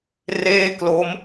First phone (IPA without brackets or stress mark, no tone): r